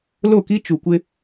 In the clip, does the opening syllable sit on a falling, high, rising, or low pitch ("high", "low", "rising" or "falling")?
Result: falling